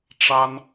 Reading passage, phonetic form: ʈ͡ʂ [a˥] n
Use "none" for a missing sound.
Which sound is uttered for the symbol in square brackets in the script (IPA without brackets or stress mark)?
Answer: a˥